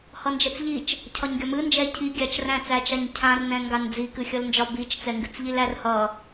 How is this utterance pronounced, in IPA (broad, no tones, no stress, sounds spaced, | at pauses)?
h ʌ n d͡ʒ ɛ t͡s ʎ i t͡ʃ | cʰ ɒ ɲ ɡʲ ɒ m ɨ n d͡ʒ ɛ cʰ i ɡʲ a t͡ʃ r æ̃ t͡s æ t͡ʃ a ɲ cʰ ã r n ɛ̃ ŋ ɡ a n d͡z i k ɨ xʲ ʌ l n d͡ʒ ɒ b i t͡ʃ t͡s ɛ ŋ ɡ ɨ t͡s ʎ i l æ r h ʌ